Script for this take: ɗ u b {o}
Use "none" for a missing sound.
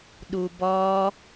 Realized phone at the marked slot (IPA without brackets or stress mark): ɔ